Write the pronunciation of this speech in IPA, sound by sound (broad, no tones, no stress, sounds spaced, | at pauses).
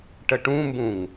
ʈ ə ʈ ũ m b ũ ŋ